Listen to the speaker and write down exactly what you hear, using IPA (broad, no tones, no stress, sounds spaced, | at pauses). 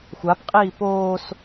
xʷ a p qʼ iː p oː s